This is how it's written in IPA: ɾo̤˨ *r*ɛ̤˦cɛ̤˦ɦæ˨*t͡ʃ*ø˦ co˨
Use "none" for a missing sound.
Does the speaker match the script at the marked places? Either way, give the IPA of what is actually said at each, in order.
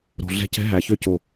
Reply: ɮ, ç

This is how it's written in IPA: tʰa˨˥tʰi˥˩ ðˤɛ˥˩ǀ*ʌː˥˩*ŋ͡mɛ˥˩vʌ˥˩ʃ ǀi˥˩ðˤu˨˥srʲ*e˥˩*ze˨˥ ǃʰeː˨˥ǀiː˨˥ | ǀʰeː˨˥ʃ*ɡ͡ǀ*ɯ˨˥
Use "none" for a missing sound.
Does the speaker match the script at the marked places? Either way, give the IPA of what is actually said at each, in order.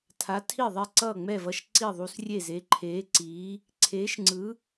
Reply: ʌː˥˩, e˥˩, ŋ͡ǀ

